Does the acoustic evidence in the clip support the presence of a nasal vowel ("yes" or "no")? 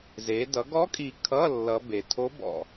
no